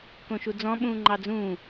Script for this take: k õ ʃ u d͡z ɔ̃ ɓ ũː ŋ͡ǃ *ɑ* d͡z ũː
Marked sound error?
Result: no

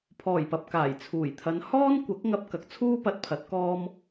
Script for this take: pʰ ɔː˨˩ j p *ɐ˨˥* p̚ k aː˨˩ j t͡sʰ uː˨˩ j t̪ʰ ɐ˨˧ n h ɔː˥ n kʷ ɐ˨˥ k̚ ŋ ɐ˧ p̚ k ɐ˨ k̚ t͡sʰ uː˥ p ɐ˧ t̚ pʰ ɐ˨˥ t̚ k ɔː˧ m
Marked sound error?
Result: yes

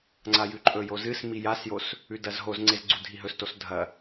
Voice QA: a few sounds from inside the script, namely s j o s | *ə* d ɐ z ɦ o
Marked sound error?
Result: yes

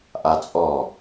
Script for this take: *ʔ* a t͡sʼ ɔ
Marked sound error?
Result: no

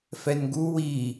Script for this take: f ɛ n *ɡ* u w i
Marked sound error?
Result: no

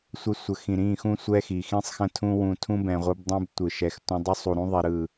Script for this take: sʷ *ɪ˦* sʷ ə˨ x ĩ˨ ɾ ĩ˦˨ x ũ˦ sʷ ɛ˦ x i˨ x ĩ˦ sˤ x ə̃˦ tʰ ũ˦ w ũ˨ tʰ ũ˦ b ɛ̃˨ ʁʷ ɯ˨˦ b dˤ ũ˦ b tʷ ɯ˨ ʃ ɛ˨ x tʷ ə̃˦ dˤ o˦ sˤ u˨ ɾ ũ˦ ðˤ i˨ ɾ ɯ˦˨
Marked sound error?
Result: yes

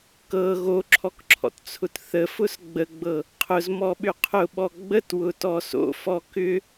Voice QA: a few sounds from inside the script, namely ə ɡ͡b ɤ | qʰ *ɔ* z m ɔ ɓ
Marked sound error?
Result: yes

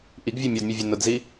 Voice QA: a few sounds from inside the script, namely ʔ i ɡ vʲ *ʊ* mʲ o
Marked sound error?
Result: yes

